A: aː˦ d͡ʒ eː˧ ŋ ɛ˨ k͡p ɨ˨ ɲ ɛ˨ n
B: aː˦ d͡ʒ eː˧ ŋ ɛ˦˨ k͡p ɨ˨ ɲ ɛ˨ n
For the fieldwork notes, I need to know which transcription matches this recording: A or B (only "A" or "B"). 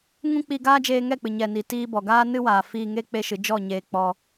B